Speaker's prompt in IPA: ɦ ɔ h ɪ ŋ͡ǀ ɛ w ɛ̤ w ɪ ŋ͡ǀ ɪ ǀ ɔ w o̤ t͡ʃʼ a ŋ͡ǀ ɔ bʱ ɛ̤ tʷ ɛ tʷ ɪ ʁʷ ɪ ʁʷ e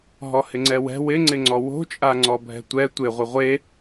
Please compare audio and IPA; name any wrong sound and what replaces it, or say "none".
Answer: ǀ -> ŋ͡ǀ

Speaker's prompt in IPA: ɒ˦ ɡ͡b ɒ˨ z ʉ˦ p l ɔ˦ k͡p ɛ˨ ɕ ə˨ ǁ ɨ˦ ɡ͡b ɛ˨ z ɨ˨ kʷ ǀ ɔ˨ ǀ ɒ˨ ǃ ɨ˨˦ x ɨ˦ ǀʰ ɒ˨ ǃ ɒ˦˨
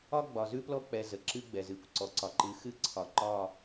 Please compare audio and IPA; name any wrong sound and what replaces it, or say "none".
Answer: ɕ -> z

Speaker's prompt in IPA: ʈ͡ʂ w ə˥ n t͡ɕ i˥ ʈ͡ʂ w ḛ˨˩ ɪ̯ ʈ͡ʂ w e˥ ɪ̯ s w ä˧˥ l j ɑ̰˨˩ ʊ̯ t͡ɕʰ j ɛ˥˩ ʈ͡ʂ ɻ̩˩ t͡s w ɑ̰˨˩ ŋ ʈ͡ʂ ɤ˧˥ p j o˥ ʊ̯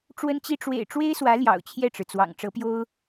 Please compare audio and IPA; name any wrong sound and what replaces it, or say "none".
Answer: none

